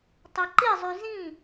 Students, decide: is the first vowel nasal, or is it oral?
oral